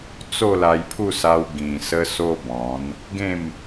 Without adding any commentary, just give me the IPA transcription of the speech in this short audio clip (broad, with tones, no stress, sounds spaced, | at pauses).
t͡s o˥˧ l a˧ j pʰ u˥˧ s a˧ w ɡ ĩ˨˩ s ə˧ s o˦ b ɔ̃˨˦ n | ɡ ẽ˥˧ m